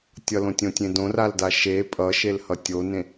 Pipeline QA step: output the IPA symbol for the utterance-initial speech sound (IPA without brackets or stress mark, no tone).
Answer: tʲ